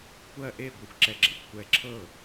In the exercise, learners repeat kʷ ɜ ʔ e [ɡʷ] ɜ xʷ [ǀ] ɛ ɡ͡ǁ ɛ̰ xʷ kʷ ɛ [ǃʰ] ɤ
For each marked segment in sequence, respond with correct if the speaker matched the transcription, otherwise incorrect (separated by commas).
correct, incorrect, incorrect